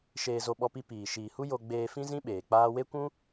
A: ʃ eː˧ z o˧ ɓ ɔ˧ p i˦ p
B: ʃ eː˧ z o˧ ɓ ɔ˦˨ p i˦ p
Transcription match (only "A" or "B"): A